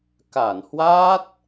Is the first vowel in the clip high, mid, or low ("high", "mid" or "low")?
low